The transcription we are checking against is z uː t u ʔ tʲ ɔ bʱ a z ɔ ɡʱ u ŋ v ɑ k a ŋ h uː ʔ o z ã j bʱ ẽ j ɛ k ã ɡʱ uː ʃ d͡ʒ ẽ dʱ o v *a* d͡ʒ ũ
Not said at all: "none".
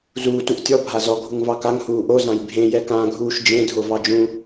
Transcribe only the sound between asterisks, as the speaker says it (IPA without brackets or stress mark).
ɑ